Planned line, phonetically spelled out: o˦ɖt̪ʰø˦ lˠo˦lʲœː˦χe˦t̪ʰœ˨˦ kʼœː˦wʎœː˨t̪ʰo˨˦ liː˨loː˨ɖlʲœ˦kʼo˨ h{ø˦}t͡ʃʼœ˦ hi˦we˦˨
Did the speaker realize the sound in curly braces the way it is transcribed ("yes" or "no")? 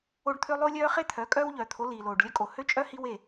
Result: yes